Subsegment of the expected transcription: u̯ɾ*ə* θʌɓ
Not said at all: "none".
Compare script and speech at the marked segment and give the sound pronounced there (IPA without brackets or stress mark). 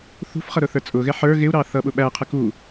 ɑ